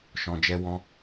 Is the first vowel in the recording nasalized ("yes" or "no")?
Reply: yes